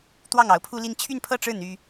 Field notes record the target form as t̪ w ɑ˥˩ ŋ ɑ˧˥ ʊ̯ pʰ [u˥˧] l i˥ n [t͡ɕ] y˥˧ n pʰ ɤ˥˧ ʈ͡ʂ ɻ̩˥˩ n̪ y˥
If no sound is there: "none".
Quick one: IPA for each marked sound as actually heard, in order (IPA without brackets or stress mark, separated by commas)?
u˥, t͡ɕʰ